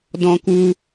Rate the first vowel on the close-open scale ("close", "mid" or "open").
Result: mid